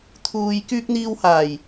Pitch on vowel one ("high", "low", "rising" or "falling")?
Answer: low